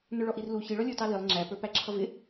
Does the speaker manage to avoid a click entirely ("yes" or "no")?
no